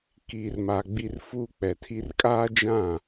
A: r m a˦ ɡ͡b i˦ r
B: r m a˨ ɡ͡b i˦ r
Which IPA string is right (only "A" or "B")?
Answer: B